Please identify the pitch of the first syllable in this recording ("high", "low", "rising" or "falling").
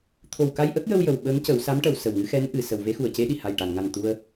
low